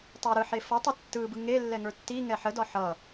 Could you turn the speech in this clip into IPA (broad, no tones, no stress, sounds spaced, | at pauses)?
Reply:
tˤ ə˞ ɾ ɯ ħ e f ʌ tˤ ə tː ɯ b ɯ ŋ e lː ɛ ŋ ə˞ tː i ŋ ɛ ħ ə d ɒ ħ ʌ